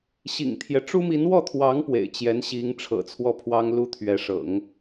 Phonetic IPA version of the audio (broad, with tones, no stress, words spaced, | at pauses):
ɕḭ˨˩ŋt̪ʰjɛ˦ ʈ͡ʂu˥mi˧˥n wɔ˥˩t̪ʰwɑ˧˥ŋ pwḛ˨˩ɪ̯t͡ɕjɛ˧˥nɕi˧˥ŋ ʈ͡ʂʰɤ̰˨˩t͡sʰwɔ˥˩pʰwɑ˥ŋ lu˥t̪ʰɥɛ˧˥ ʂɤ̰˨˩˦ŋ